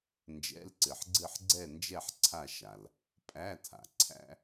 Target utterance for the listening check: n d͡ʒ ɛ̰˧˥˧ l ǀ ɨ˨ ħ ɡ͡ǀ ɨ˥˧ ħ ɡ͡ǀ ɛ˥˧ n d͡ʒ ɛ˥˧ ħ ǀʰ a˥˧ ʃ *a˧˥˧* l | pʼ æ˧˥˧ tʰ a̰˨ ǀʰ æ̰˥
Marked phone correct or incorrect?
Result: incorrect